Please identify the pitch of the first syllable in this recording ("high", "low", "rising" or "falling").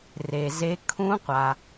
low